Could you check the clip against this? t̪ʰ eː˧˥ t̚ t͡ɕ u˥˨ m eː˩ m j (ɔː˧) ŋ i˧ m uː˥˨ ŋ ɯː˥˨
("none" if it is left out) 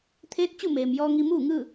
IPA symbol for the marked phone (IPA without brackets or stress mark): ɔː˧